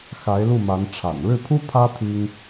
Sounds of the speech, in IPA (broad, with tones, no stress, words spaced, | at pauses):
xa˧˥ɪ̯lu˥˩ma˧˥nʈ͡ʂʰa̰˨˩n ɻɻ̩˥˩pʰu˥ pʰä˥ t̪ʰi˥ŋ